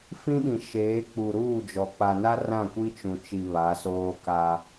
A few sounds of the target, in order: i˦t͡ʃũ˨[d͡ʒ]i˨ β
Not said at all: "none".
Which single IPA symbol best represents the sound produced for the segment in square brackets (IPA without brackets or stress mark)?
t͡ʃ